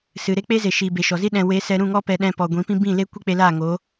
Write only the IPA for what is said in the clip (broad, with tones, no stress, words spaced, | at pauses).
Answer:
sɨ˨ ɾe˧k͡pe˧ ze˨ʃiː˨be˨ ʃɔ˨zi˦ ɗɛ̃˨we˨˦ sɛ˧ ɾũ˦˨ŋɔ˦ pɛ˧ ɗɛ̃˧pɔ˨ ɡʷĩ˨˦pĩ˦ bĩ˦˨le˦ kʷi˦k͡pe˧ laː˦˨ŋoː˨˦